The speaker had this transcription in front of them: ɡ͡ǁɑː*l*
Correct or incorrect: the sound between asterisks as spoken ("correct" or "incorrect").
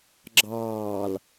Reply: correct